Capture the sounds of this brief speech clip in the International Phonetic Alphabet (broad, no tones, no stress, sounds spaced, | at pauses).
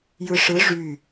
j ɯ ʂ ɯ ʐ y